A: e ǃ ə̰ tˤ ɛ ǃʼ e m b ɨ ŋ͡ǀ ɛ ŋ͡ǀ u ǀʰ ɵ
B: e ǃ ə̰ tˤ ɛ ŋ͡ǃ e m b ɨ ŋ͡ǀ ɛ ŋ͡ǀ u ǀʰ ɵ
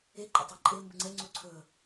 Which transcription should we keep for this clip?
A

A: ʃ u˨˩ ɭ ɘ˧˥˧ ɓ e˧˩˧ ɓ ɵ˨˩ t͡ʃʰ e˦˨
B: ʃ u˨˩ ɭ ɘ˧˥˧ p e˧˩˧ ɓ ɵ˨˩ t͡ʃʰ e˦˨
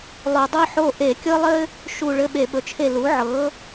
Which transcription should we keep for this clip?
A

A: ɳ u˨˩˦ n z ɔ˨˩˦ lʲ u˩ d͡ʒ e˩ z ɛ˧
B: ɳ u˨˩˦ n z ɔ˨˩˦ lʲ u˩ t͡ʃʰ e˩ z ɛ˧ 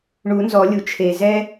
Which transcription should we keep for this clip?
B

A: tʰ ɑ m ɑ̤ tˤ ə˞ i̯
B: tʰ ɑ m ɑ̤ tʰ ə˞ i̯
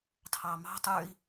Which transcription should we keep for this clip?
A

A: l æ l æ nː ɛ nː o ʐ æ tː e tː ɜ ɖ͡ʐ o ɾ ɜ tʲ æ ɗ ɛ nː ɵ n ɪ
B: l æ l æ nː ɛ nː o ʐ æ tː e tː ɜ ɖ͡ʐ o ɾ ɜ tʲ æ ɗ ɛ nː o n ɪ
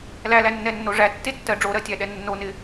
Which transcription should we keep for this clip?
B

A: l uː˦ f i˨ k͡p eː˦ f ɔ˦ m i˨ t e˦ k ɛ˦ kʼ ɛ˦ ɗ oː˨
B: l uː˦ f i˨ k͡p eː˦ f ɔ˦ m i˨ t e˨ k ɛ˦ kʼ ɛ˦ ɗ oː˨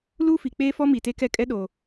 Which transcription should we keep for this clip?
A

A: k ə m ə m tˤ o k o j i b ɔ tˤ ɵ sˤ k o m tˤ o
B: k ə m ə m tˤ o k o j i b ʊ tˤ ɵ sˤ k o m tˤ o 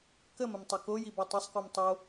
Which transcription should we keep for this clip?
A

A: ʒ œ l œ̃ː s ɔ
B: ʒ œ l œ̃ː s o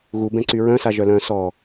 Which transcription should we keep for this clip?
A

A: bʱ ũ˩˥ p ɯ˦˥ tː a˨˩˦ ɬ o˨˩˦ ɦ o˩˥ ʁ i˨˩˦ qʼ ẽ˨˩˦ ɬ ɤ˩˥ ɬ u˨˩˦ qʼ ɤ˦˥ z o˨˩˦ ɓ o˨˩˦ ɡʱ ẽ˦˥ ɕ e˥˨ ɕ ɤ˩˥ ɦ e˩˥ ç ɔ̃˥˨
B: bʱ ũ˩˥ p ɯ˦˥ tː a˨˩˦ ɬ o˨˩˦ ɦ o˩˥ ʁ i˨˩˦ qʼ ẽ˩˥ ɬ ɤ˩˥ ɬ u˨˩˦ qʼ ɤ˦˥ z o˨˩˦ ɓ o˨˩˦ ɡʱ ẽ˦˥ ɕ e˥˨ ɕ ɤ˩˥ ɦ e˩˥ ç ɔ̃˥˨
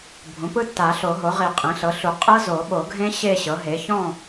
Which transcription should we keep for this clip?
B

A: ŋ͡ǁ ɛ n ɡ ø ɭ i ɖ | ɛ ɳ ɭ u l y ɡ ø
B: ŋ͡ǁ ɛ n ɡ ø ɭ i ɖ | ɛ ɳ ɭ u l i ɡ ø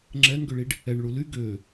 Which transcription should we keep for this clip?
A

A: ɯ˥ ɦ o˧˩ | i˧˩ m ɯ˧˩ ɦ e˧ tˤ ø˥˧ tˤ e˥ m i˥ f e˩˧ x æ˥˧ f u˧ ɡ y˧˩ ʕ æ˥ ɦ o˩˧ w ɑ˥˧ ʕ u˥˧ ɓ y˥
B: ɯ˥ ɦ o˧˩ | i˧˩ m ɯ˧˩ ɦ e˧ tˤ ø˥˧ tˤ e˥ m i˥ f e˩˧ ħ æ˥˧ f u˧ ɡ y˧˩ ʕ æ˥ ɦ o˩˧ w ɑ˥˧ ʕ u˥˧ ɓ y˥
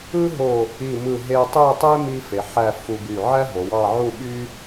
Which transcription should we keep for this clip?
B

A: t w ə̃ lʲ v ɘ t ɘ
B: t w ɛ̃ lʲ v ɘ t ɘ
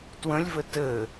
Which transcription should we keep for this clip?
A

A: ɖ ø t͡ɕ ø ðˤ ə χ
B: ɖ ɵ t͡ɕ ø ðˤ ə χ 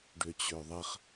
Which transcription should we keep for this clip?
A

